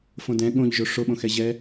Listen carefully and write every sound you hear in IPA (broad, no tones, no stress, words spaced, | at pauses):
fõdɛ̃ ɠõʎ ʒoʂoɓõ xɛʑɛ